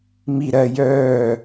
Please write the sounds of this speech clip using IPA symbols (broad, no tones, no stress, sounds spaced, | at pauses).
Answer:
m i ɾ ɜ j œː